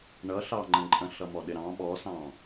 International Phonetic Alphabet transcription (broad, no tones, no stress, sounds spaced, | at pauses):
ɳ ʌ ɬ ɑ ŋ͡ǃ ə̃ ǃʼ ə̃ ɬ ʌ m ɔ ɗ ɪ ɾ ɑ̃ ɓ ɔ s ɑ̃